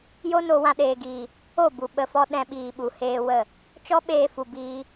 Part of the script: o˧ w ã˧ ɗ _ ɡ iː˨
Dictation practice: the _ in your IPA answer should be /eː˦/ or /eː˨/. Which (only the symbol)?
eː˨